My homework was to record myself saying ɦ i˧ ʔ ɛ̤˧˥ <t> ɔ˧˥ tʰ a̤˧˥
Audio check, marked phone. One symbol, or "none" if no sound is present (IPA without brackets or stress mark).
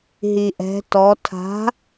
t